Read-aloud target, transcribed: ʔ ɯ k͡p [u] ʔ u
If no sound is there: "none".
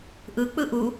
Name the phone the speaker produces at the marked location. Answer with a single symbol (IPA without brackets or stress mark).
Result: ɯ